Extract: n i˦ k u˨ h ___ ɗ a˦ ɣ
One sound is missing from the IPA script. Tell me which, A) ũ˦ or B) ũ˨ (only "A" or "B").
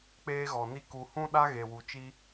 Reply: A